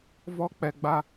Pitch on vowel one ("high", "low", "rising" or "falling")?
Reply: high